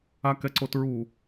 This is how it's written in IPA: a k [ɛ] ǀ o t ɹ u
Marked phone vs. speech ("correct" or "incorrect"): correct